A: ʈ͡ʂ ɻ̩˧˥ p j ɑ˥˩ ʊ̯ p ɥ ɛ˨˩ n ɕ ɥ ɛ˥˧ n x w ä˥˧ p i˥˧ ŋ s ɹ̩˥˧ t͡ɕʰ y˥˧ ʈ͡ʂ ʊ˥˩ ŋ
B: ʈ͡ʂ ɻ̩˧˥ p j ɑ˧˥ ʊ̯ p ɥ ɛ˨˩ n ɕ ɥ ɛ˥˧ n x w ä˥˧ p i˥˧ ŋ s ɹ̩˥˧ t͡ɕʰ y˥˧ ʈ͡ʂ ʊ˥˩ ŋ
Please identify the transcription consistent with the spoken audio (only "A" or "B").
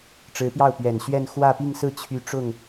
A